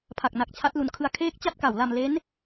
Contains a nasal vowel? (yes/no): no